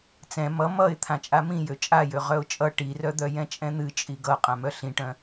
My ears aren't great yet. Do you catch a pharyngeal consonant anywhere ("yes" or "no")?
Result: no